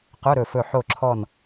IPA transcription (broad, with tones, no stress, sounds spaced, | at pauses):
q œ˧˥˧ ɾ ɵ˧˩ f ɵ˧˩ ħ o˧˩ ǁʰ ɔ˧˩ n